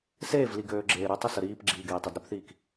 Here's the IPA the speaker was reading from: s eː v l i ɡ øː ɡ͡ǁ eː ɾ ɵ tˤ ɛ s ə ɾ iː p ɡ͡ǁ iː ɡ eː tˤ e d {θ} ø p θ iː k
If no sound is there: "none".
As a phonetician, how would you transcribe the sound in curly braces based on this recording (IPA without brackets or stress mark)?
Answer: ɾ